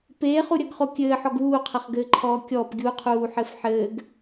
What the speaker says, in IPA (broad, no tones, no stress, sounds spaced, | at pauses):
p eː χ u ɾʲ ɐ ɡ χ o kʲ ɘː ħ ɔ ɡ uː qʰ ɐ χ ɡ ɘː ǃʰ ɔː kʲ ɔ p ɡʲ u qʰ uː ħ ɘ f ħ ɘː ɡ